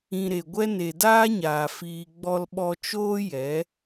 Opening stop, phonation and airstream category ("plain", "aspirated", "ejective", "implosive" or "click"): plain